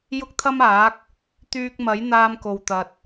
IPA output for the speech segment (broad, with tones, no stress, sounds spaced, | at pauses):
j ʊ˥ k̚ t̪ʰ ɐ˥ m aː˨˥ k̚ | t̪ yː˧ k̚ m ɐ˨˥ j n̪ aː˧ m k o˨ w t̪ ɐ˧ t̚